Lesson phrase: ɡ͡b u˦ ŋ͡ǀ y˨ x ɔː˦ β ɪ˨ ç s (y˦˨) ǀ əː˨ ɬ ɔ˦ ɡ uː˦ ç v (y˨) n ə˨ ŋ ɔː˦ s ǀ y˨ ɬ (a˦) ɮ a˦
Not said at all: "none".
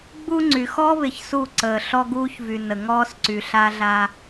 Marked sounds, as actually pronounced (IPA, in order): u˦˨, y˨, a˦

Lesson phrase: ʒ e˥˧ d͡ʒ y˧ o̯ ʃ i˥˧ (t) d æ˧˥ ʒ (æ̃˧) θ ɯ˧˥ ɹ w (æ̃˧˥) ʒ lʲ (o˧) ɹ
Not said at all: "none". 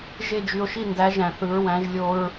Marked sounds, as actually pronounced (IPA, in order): n, æ̃˧, æ̃˧˥, o˧

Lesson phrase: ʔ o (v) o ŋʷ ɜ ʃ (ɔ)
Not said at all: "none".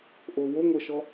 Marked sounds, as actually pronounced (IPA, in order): w, ɔ

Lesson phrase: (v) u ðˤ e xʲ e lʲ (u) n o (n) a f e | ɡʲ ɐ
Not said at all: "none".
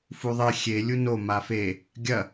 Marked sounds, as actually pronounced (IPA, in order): f, u, m

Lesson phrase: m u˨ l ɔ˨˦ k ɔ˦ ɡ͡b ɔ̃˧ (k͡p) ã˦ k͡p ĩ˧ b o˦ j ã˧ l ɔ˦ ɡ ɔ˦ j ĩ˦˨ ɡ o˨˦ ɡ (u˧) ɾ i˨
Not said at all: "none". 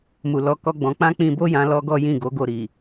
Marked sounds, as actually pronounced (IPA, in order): k͡p, o˧

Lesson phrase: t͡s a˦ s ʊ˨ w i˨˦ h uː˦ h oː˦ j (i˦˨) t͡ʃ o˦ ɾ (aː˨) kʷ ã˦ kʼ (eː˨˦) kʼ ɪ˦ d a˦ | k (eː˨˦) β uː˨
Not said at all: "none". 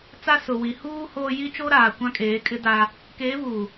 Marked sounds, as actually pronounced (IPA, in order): i˦, aː˨, eː˨˦, eː˨˦

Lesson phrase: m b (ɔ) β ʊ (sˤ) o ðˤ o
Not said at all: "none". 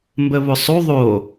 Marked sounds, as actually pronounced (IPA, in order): ə, sˤ

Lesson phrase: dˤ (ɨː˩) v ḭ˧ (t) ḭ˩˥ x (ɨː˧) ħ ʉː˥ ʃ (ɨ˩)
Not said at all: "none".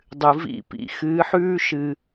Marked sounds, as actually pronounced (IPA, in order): ɨ˩, p, ɨː˩˥, ɨ˩

